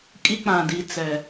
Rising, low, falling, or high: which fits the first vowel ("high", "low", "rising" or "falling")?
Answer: high